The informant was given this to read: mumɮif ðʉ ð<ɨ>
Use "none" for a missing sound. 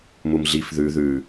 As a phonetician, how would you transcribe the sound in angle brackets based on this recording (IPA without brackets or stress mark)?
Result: ʉ